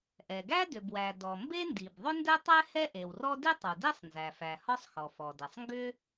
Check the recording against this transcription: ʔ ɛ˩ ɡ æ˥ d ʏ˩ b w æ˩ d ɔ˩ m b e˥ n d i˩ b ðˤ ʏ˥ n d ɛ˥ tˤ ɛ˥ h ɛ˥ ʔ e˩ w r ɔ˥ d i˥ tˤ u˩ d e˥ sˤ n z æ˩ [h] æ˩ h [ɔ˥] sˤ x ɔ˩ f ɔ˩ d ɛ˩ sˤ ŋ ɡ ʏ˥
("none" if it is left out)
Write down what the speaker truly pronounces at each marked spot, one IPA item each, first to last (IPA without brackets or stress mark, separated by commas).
f, ɔ˥